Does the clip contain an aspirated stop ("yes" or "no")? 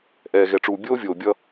no